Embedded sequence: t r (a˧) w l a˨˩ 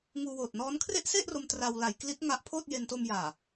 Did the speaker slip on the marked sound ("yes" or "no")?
no